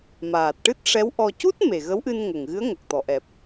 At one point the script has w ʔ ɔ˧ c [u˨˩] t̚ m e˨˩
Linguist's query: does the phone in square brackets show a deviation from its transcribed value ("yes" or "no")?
yes